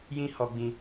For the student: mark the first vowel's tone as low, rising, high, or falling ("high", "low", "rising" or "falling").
high